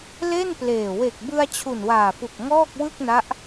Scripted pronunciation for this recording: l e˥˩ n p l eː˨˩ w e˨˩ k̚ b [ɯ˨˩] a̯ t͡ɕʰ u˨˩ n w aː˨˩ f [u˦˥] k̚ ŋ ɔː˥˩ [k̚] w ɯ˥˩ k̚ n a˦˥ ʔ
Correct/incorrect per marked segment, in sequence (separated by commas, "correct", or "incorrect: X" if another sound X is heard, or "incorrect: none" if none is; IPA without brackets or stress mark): incorrect: ɯ˧, incorrect: u˨˩, correct